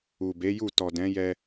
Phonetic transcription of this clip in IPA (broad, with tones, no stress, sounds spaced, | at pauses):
u˨ b e˨˦ j u˦˨ t ɔ˨ d ɛ̃˨˦ j ɛ˧